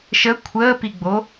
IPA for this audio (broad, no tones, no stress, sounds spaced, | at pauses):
ʃ ə kʷʰ əː p i ɡ͡b o